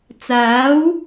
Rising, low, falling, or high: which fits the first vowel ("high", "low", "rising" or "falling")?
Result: rising